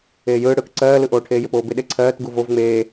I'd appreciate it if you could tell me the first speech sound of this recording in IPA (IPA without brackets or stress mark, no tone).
eː